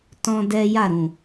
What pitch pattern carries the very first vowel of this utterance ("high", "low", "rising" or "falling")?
high